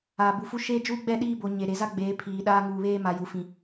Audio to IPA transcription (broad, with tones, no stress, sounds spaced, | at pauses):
aː˨ b u˨ f u˦ ʃ e˦ d͡ʒ uː˦ ɡ͡b ɛ˦˨ ɗ iː˦ b o˨ ɲ e˨ ɾ e˨ z a˦ ɡ͡b eː˨˦ pʰ iː˨ ɗ aː˦ ŋ uː˨ β eː˦ m a˨ j u˨ f ĩ˨